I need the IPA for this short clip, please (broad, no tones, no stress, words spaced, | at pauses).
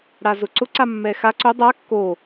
ɽazʊǀʊ ǀamːɛxa ǀʊ dˤa kːo